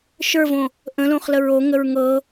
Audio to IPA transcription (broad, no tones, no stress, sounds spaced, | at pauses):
ʃ ə˞ v õ | ʔ ə̃ l õ χ l ə ɹ o ŋ ə ɹ ŋ ɤ